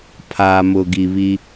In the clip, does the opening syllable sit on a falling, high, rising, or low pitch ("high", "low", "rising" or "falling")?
low